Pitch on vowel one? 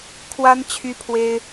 high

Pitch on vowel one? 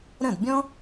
falling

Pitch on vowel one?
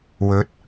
rising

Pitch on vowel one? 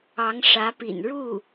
rising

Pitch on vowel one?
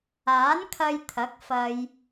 rising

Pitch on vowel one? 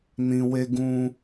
low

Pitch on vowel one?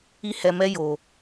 high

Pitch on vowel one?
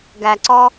low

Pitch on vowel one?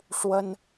high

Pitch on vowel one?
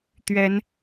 rising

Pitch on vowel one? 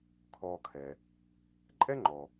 low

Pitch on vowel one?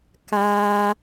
high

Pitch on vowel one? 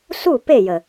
falling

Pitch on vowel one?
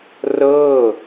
falling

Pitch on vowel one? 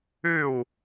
falling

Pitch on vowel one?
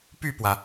falling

